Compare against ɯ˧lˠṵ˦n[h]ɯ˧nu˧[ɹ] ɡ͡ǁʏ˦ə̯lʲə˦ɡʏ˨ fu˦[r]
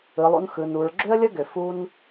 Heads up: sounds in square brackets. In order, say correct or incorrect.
incorrect: x, correct, incorrect: n

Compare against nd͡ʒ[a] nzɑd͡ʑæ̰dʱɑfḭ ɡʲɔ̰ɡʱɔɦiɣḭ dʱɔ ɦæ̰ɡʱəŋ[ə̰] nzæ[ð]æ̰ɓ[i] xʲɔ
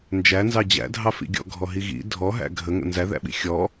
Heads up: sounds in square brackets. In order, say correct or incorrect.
incorrect: æ, correct, correct, incorrect: ḭ

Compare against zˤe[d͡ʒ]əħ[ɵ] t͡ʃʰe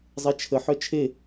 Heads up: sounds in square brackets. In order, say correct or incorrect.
incorrect: t͡ʃʰ, incorrect: œ

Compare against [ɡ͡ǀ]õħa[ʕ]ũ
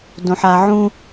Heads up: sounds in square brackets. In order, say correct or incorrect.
incorrect: d, correct

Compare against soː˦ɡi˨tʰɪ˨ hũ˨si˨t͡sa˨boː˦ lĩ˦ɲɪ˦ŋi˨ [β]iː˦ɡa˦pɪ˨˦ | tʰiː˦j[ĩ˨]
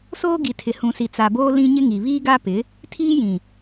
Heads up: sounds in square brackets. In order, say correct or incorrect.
correct, correct

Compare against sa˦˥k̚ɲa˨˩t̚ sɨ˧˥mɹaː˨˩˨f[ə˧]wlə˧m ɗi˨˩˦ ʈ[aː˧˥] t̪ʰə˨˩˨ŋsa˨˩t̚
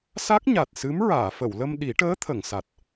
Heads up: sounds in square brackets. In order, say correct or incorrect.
incorrect: ə˨˩˨, incorrect: əː˧˥

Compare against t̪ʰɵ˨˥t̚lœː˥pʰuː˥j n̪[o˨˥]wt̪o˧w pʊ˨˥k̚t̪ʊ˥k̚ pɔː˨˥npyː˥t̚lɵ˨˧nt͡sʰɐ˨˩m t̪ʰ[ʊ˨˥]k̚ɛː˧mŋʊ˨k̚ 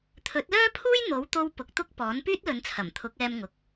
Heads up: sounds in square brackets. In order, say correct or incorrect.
correct, correct

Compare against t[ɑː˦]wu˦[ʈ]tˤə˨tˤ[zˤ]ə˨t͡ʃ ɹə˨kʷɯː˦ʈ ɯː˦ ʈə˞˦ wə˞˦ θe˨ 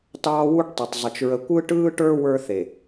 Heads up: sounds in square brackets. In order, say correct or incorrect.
correct, correct, correct

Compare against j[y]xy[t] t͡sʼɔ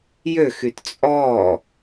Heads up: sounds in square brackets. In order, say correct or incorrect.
incorrect: ø, correct

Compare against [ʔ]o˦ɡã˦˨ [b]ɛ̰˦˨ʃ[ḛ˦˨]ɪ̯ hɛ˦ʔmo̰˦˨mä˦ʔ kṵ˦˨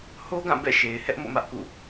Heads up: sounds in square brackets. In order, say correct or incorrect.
incorrect: h, correct, incorrect: e˨

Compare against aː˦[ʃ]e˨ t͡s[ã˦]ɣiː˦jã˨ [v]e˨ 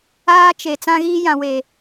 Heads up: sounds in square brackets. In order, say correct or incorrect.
incorrect: t͡ʃ, correct, incorrect: w

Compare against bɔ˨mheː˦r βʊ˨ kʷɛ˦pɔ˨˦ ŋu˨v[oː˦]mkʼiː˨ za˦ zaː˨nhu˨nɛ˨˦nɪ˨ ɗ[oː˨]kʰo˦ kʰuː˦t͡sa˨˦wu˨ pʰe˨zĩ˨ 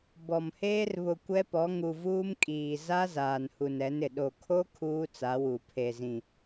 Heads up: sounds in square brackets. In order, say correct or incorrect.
incorrect: uː˦, incorrect: o˨

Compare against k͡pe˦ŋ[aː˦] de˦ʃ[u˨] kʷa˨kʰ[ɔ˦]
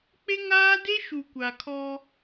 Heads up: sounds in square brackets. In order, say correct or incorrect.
correct, correct, correct

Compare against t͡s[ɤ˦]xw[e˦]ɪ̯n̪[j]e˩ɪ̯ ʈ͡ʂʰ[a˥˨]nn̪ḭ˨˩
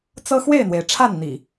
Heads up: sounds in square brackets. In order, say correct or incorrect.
correct, incorrect: e˥˨, incorrect: w, correct

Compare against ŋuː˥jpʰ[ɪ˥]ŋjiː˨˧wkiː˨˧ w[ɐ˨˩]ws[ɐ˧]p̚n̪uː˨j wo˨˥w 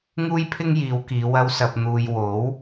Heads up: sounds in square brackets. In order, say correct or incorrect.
correct, incorrect: ɐ˧, incorrect: ɐ˨

